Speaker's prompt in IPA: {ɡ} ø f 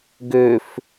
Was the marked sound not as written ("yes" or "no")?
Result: no